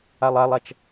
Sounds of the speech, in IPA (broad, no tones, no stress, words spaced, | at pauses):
alˠalˠat͡ʃ